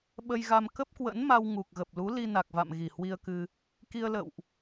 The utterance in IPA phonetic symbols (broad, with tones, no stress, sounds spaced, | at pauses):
ɓ ə˧ j ɣ a˧ m k ə˦˥ p̚ k w ə̰˧˥ n m a˧ w ŋ u˨˩ k̚ ɣ ə˨˩ p̚ l u˨˦ l i˧ n a˨˩ k̚ v a̰˧˨ m ɣ i˧˩ h w i˧ ə̯ k ɨ˧ | k i˧ ə̯ l ə̰˧˨ w ʔ